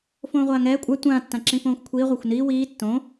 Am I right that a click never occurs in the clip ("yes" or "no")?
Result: no